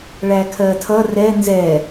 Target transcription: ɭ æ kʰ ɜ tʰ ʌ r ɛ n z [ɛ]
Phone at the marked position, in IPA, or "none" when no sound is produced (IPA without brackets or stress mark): ɛ